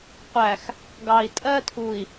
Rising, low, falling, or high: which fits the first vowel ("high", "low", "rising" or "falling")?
low